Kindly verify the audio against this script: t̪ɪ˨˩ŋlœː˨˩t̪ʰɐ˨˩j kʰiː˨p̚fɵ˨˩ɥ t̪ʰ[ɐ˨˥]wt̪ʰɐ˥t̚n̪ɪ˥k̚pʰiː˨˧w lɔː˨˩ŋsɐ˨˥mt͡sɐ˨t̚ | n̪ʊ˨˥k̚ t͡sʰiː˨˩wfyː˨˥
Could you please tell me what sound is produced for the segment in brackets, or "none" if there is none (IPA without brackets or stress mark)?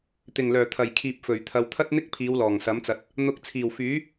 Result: ɐ˨